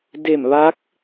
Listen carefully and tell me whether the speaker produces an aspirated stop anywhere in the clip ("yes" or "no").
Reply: no